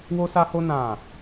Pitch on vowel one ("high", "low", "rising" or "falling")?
high